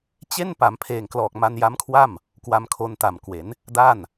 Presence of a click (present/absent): absent